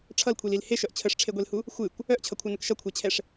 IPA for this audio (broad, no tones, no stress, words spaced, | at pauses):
ʈ͡ʂʰʌlkʷʰilil heʃœʔ t͡ɕʰəʂʈ͡ʂʰeɡʷelhu | xʷɨkʷ | œʔt͡ɕʰʌkʷʰœnək ʃʌkʷʰɛt͡ɕʰɛʂ